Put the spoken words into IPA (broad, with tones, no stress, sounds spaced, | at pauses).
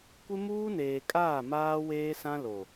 kʷ ɪ˦ m uː˦ n eː˨ kʼ aː˦˨ m aː˦ w eː˦ s ã˦ l o˨